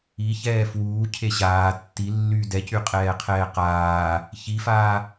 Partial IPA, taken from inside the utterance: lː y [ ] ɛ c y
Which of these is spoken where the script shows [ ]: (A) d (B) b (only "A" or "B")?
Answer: A